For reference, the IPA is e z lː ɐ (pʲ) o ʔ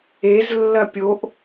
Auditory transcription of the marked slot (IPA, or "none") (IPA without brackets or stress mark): pʲ